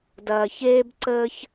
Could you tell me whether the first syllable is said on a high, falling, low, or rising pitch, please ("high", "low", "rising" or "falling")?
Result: low